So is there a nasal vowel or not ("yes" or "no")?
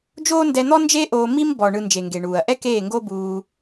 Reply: no